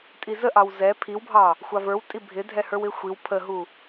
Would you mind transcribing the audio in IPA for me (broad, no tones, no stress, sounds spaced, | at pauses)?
tʼ i z ə ʔ ɑ w z ɛ pʰ i w bʱ ɑ | xʷ ɑ v ə˞ w tʼ i bʱ ɪ dʱ ɛ h ə˞ w ɪ xʷ i w pʰ ə ɦ u